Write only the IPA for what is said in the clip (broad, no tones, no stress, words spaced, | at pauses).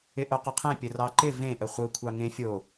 ɪʔoqəqʰẽ pʲərɑǃɪ vẽ ʔəχʷɯ kʷʰɑŋẽ fʲo